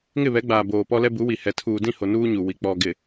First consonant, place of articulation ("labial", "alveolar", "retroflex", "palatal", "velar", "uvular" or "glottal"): velar